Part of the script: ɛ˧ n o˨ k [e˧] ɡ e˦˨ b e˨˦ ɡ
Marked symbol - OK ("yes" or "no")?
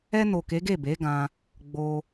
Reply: no